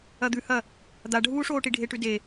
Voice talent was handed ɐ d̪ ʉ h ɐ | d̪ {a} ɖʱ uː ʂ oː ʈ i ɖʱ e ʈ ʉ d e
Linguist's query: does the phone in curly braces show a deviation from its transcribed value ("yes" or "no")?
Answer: no